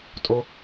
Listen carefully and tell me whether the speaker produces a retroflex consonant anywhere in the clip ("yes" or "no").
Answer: no